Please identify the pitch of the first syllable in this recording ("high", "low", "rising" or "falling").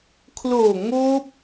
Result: low